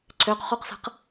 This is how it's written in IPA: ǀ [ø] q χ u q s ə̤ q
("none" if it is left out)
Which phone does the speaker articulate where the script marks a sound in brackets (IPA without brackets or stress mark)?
ø